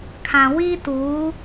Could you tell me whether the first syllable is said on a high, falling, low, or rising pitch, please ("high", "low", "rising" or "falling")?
low